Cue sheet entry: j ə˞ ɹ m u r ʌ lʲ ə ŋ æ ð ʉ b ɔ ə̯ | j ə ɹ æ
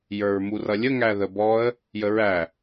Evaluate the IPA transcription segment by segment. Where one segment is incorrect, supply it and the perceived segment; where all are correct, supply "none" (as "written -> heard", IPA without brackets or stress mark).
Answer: ʉ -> ə